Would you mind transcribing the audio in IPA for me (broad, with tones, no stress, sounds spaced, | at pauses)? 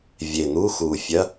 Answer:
vʲ e˨˩ n̪ u˧˥˧ x u˨˩ fʲ ɐ˧˥˧